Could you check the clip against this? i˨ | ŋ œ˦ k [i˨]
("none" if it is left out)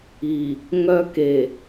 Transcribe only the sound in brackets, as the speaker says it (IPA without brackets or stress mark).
e˨